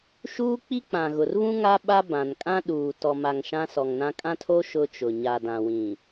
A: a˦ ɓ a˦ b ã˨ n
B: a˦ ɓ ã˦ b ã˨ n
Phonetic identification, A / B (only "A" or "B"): A